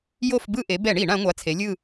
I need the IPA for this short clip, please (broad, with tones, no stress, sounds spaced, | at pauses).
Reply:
j o˦˨ f b ɯ˦˨ ʔ e˩˧ b ɛ˧˩˧ ɳ i˧˩˧ ɳ ã˩˧ ŋʷ a˩˥ t͡sʰ e˩˧ lʲ ɯ˦˨